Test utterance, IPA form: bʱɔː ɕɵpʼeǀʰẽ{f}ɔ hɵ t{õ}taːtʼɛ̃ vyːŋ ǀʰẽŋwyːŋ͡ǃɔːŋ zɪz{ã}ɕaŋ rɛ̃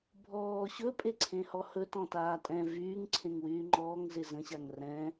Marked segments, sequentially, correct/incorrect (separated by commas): incorrect, incorrect, incorrect